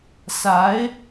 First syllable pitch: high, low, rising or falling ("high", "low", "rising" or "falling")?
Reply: rising